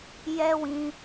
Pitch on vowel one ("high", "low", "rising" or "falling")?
high